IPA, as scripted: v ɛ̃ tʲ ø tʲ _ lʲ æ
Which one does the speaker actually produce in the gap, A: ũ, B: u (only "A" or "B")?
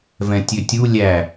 B